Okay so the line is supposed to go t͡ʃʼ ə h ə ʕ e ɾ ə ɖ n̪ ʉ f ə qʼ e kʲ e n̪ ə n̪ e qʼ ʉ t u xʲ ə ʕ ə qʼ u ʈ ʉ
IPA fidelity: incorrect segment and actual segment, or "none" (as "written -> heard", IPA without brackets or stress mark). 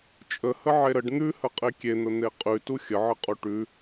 f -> h